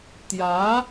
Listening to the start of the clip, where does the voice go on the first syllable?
rising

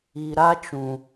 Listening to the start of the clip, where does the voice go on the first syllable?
low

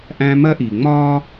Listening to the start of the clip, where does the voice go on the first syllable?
high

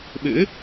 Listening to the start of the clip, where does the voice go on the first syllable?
rising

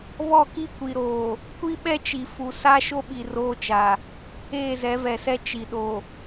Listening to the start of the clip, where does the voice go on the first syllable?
falling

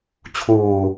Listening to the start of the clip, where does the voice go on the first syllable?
low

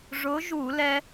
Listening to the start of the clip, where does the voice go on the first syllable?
rising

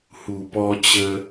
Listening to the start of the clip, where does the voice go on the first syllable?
low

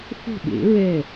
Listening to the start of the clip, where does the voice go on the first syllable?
falling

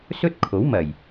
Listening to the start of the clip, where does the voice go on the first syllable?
high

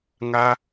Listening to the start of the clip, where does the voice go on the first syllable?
high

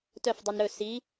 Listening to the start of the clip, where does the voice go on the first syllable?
falling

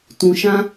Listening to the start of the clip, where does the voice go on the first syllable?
low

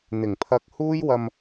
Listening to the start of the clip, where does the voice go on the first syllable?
low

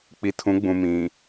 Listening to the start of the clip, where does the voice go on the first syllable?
low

